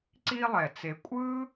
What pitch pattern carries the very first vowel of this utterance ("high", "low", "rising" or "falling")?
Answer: high